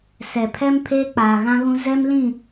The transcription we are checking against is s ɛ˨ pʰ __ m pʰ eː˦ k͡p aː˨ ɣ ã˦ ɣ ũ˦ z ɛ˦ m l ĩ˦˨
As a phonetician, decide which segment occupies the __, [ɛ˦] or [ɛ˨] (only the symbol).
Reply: ɛ˦